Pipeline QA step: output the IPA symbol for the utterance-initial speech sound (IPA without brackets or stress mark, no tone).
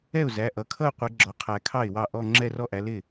ɛ